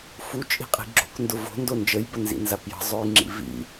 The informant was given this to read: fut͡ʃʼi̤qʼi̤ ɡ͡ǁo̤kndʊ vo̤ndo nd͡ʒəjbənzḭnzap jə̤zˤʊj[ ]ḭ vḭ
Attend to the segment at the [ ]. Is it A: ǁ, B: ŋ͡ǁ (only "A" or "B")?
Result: B